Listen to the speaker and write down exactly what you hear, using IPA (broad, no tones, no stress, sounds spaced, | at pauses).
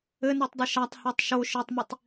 ɘ n ɤ tˤ dˤ ɘ ʃ a tˤ h ɔ tˤ ʃ o ʃ ɘ tˤ m i tˤ